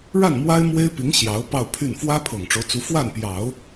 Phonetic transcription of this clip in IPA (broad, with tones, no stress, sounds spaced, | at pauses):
ɻ a˥˩ n m w a˥ ɪ̯ m w e˥ ɪ̯ p i˧˥ ŋ ɕ j ɑ˧˥ ʊ̯ p ɑ˥˧ ʊ̯ pʰ y˥˩ n f w ä˥ pʰ ɤ˨˩ ŋ ʈ͡ʂ o˦ ʊ̯ t͡s u˧˥ f w a˥˩ n p j ɑ˨˩˦ ʊ̯